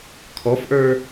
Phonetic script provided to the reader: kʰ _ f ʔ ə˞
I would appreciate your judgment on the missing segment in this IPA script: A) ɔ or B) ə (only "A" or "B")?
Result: A